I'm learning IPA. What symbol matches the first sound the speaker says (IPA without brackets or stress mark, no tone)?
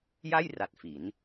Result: j